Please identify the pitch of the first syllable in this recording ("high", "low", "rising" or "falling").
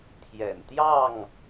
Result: low